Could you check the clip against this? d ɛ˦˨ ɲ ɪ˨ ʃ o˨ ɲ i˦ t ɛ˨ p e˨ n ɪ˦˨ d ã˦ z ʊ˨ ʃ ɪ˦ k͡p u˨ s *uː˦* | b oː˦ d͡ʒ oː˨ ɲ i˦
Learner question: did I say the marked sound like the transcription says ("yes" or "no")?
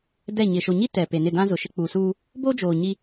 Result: yes